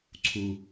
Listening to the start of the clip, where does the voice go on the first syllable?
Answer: high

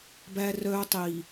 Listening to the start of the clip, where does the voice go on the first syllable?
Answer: high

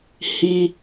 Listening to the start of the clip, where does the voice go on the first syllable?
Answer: high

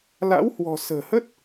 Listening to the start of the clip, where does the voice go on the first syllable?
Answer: rising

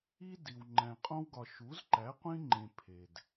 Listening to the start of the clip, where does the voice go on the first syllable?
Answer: high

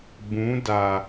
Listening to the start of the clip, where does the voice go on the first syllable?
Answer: rising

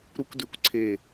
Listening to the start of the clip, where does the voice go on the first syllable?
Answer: high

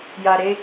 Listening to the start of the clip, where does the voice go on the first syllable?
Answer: low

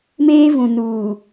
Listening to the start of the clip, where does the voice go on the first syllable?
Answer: high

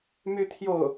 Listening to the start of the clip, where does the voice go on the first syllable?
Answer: high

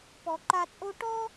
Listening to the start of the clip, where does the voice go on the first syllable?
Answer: low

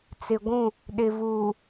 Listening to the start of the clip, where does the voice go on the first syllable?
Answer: low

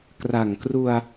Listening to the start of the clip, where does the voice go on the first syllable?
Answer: low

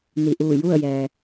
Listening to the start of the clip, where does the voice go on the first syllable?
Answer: low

